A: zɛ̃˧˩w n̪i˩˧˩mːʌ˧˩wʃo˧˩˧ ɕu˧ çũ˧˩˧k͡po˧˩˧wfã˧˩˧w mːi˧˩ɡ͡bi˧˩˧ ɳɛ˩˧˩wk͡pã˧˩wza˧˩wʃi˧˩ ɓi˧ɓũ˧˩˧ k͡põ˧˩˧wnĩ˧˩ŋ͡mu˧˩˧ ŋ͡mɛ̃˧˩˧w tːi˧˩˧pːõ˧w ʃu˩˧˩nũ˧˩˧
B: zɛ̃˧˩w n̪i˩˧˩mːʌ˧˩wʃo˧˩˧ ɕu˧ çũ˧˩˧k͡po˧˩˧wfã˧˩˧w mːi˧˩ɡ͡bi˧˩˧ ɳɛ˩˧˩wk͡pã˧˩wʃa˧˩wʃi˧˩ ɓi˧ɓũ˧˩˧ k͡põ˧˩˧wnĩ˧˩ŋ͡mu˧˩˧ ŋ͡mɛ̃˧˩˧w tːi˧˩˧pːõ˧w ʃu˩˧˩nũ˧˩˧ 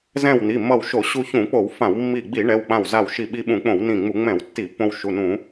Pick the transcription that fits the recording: A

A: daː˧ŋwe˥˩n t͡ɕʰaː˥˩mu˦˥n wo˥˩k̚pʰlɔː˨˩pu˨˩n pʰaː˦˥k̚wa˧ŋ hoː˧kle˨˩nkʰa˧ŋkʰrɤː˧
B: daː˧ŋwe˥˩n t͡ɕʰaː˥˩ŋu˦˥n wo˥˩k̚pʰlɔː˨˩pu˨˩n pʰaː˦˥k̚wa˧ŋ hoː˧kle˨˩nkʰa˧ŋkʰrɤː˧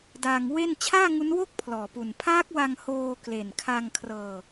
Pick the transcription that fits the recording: B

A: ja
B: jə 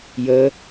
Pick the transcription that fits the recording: B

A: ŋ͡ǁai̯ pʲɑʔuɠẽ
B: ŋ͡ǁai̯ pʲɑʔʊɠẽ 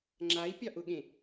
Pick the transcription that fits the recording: B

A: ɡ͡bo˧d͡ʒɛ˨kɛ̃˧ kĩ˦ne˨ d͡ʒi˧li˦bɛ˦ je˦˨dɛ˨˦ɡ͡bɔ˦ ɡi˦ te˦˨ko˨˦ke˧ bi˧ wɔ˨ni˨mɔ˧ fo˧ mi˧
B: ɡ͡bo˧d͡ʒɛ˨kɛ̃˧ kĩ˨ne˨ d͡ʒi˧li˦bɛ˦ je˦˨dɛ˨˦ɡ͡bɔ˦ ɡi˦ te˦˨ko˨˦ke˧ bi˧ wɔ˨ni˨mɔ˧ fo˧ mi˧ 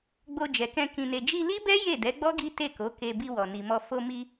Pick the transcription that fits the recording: B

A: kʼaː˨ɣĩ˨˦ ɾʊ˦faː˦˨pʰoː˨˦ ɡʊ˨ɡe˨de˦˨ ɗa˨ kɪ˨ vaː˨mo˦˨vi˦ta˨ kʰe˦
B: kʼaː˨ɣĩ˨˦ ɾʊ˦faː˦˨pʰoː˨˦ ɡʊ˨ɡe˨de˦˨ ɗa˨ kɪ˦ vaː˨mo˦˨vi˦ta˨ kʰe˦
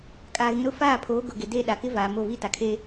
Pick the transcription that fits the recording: B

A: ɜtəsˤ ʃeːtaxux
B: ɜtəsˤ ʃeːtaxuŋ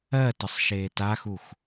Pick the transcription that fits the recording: A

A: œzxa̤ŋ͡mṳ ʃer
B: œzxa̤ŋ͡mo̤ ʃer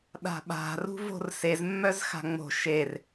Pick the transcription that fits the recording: B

